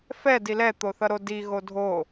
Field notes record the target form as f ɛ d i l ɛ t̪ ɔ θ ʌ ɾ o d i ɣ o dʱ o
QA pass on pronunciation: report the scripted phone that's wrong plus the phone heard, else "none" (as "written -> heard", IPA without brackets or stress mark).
ɔ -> o